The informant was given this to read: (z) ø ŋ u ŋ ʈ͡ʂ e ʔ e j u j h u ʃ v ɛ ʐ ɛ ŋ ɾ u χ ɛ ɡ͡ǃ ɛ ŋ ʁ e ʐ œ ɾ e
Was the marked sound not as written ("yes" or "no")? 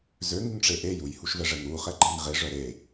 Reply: no